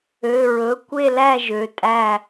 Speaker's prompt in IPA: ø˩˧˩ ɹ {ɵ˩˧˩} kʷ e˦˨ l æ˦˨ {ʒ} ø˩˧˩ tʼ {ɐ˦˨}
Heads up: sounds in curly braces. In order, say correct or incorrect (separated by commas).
correct, correct, incorrect